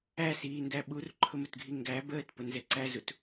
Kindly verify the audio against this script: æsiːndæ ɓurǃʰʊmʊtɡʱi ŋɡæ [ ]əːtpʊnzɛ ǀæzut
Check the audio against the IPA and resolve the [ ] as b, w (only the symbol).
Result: b